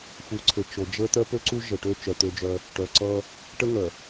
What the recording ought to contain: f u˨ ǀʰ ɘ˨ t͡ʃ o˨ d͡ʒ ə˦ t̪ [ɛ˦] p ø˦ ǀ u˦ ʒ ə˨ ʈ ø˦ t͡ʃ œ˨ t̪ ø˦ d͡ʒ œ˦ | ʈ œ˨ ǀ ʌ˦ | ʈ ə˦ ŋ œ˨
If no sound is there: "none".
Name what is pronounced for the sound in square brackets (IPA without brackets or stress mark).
œ˦